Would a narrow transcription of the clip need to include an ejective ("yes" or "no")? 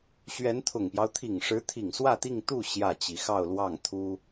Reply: no